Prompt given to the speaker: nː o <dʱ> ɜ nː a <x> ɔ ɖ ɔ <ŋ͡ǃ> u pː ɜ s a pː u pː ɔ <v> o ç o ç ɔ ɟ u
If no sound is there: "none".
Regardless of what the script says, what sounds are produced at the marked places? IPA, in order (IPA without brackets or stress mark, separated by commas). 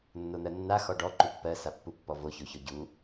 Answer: n̪, x, ǃ, v